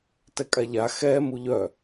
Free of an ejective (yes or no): no